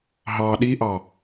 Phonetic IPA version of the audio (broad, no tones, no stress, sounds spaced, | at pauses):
ɦ ɑ ɗ i ʔ ɑ